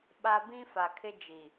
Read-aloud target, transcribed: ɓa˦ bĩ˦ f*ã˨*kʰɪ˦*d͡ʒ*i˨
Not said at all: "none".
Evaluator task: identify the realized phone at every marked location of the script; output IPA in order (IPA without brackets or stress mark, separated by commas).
a˨, d͡ʒ